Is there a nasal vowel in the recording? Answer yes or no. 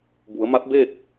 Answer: no